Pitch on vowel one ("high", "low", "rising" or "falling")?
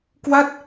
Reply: falling